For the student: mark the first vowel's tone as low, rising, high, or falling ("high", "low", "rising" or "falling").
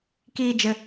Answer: high